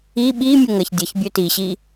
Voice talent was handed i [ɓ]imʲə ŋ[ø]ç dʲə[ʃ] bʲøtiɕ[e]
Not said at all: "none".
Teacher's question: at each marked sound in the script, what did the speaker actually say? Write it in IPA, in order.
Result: ɓ, ə, ç, i

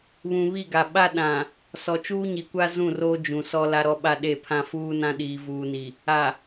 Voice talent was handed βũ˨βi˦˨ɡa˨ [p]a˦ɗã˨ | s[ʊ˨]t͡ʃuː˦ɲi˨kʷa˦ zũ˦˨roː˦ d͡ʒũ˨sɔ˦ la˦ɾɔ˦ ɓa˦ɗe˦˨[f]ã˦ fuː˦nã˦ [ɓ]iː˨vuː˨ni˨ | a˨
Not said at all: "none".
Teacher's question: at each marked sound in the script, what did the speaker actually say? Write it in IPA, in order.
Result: ɓ, ɔ˨, pʰ, ɗ

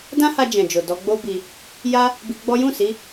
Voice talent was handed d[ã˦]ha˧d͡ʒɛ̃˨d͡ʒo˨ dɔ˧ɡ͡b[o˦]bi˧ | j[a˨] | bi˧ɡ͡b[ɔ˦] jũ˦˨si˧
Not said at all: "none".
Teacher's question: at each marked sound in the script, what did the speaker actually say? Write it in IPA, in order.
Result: ã˦, o˦, a˦, ɔ˦

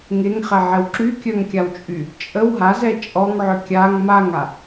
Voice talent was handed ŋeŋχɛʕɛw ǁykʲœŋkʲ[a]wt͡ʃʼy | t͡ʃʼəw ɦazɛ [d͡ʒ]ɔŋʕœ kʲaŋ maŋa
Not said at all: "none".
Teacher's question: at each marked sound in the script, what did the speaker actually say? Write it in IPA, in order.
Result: a, t͡ʃʼ

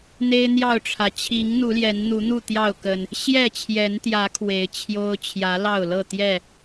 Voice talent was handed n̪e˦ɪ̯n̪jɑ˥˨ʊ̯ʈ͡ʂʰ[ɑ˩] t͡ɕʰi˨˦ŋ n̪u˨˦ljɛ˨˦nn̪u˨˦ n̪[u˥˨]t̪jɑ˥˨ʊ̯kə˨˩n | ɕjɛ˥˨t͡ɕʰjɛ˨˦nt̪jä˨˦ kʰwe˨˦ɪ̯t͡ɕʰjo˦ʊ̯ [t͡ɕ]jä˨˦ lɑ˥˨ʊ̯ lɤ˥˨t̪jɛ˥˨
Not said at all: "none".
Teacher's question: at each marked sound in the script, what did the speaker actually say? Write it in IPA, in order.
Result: ä˩, u˥˨, t͡ɕʰ

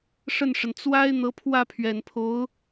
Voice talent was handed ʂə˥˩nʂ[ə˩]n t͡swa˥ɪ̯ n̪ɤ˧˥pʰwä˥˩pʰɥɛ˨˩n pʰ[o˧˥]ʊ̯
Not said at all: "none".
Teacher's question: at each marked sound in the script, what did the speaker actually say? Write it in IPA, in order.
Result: ə˩, o˧˥

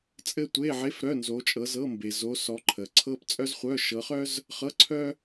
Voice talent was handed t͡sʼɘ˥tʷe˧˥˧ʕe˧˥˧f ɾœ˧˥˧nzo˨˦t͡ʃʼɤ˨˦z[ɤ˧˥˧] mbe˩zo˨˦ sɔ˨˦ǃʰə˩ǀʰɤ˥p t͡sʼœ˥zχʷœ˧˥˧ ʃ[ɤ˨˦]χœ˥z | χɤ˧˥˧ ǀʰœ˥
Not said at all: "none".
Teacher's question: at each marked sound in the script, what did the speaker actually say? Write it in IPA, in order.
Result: ɤ˧˥˧, ɤ˨˦

